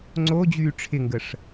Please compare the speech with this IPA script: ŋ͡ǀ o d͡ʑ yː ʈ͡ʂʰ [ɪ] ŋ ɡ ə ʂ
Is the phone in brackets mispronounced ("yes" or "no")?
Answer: no